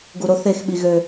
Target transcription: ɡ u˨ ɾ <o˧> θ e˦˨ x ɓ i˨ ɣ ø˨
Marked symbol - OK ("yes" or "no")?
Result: yes